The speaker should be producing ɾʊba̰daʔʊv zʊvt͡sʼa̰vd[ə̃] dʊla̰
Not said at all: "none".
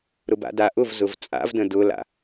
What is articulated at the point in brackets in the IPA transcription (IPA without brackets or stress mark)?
ə̃